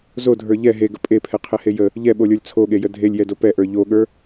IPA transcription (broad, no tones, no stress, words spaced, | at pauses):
zodʱə˞ ʎɛ ɦeɡə pʼepʰɛqʰɛhe jə | ʎɛɓolʲə˞lʲ t͡sʰoɠejə dʱelʲjɛdo pɛʔə˞ ʎoɠə˞